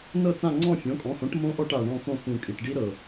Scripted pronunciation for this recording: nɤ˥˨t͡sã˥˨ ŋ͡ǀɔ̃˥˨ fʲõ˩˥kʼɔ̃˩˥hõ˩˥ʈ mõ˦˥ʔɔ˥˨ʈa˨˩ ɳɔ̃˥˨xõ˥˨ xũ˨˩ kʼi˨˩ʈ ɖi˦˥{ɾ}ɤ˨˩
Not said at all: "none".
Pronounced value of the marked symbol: ɾ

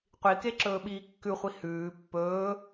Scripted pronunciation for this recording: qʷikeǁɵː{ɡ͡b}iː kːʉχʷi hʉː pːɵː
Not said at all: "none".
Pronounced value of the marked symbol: ɓ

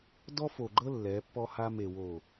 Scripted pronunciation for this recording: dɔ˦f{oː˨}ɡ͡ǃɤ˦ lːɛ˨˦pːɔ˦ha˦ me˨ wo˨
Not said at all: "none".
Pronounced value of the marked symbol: o˨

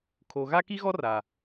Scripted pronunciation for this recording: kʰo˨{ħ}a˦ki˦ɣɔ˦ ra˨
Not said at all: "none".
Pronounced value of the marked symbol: ɣ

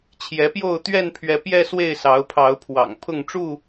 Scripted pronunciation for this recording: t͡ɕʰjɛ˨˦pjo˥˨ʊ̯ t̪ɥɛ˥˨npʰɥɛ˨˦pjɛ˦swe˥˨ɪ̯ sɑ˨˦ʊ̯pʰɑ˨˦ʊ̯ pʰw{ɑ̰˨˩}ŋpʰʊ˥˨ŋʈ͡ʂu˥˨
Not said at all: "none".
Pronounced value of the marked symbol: ɑ̰˨˩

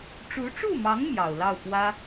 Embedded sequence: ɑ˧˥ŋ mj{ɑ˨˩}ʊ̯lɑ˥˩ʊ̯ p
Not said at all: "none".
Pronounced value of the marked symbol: ɑ˨˩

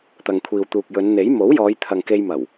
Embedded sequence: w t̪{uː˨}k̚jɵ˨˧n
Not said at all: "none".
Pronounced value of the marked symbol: uː˨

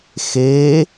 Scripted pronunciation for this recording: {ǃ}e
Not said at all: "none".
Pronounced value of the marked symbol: x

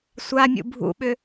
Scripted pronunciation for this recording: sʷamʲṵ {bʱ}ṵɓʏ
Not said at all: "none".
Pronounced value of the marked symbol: bʱ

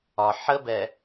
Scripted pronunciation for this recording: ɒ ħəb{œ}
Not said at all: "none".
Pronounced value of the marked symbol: ɛ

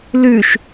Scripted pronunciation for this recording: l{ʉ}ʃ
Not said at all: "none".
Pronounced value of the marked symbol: ʉ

